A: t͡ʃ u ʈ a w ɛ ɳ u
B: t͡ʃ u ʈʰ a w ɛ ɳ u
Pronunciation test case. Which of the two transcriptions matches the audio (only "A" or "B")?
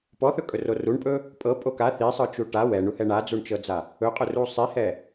A